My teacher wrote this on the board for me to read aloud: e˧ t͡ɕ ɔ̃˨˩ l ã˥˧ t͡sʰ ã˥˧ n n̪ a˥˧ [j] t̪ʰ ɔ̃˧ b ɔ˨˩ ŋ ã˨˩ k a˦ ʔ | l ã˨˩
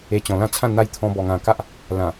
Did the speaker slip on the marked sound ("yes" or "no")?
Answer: no